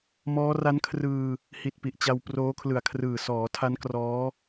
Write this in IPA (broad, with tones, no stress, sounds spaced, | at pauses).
m ɔː˦˥ r a˦˥ n kʰ r ɯː˧ | h i˨˩ t̚ p i˨˩ ʔ t͡ɕ a˧ w p r oː˦˥ kʰ l ɯ˨˩ a̯ kʰ r ɯː˨˩ s ɔː˩˦ tʰ a˦˥ n k r ɔː˦˥